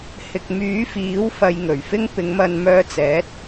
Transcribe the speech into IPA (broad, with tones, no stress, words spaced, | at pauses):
hɪ˨k̚myː˨˥fiː˨˥w fɐ˧jŋɵ˨˩ɥfɪ˥ŋ pɪ˨˧ŋmɐ˧nmœː˧t͡sɛː˨˥t̚